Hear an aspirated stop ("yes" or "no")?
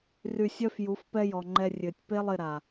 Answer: no